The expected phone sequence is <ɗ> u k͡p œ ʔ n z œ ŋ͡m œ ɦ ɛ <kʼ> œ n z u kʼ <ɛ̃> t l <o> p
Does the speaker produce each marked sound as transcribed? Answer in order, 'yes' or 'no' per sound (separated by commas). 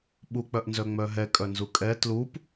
no, yes, no, no